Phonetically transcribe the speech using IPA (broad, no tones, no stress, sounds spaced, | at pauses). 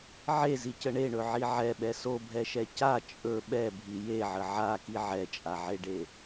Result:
ʕ e z i c ə ɳ e ɳ ɵ ʕ i ʕ ɛ ɓ ɛ s o bʱ ɛ ʃ ɛ c a t͡ʃʼ ɵ ɓ ɛ bʱ i j e ʕ ə ʕ a k i ʕ ɛ t͡ʃʼ a ʕ e ɖ e